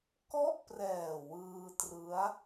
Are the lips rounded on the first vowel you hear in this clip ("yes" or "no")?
yes